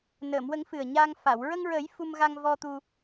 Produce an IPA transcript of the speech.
n əː˨˩˨ m w ə˨˩˦ ŋ f ɨ˨˩ ə̯ ɲ aː˧ ŋ f a˨˩˨ w ɹ ə˧ ŋ ɹ ə˨˩˦ j f u˧ m ɣ a˧ ŋ v ɔ˧ t̪ u˧

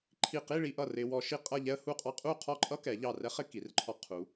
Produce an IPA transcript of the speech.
ǃʰ i˧˩ q i˥˧ ɭ i˧ ʔ ʌ˧˩ r ɪ˧ w ɔ˧ ʃ i˥˧ qʼ ʌ˥˧ ʎ ɛ˥ ə̯ h u˥˧ qʼ ɑ˥ qʼ u˥˧ qʰ ɔ˥˧ ǃʼ ʌ˥ k ɛ˩˧ ʎ ɑ˧˩ r ɛ˥ χ ɪ˥˧ k i˩˧ r ǃʰ ɔ˧ qʰ u˩˧

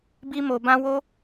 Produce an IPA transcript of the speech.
b i˦ m o˧ b ã˦ w o˦

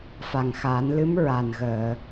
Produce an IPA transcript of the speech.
f a˨˩ ŋ x a˨˩˦ n l ɨ˧˥ m ɹ a˨˩ n ɣ əː˨˩˨

